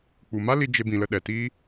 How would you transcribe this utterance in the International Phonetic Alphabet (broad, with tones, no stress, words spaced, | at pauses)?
k͡pu˨ma˦li˧ d͡ʒe˦bĩ˧lə˦ɗɛ˨ tiː˧